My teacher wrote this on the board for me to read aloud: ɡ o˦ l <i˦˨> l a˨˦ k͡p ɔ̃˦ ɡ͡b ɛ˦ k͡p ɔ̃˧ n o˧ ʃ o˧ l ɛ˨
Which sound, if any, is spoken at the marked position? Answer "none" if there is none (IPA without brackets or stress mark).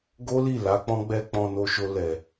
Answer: i˦˨